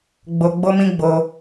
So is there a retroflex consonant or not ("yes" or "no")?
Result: no